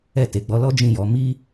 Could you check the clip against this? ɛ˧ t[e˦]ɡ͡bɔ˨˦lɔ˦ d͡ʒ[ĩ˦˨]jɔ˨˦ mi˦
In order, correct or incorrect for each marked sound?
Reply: incorrect: e˨, correct

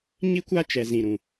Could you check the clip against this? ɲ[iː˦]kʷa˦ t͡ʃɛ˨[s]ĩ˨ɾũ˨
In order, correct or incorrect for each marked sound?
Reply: incorrect: i˦, incorrect: z

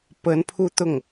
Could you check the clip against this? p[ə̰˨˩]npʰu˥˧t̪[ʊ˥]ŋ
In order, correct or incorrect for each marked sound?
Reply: incorrect: ə˧˥, incorrect: ʊ˥˩

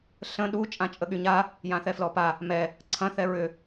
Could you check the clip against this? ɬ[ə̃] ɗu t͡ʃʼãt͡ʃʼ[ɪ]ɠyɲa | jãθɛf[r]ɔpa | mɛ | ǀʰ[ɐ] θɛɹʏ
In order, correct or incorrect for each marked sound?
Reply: correct, incorrect: ə, incorrect: l, incorrect: ɐ̃

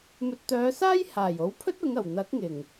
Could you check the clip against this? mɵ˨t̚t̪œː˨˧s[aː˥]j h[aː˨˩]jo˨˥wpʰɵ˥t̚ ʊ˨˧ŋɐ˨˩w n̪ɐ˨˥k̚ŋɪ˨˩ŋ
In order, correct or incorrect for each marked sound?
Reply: correct, correct

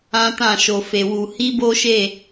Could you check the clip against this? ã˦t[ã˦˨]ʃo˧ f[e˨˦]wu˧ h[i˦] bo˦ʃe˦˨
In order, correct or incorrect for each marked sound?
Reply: correct, incorrect: e˧, correct

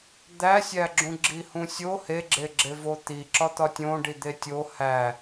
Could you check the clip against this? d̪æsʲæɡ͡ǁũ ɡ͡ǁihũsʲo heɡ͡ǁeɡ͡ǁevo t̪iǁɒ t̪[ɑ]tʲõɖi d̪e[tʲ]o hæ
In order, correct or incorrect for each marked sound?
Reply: incorrect: ɒ, correct

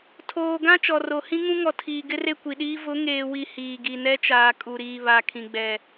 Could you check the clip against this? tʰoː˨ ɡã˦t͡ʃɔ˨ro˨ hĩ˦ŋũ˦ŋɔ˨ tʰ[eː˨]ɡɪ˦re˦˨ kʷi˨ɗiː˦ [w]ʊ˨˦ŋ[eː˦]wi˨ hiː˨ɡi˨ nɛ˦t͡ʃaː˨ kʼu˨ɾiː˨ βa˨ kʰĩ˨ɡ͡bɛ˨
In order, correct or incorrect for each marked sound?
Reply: incorrect: iː˨, incorrect: v, incorrect: eː˨

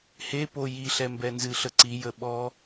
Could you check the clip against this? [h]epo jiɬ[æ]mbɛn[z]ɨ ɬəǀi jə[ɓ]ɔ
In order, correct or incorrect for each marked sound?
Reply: correct, incorrect: ɛ, correct, correct

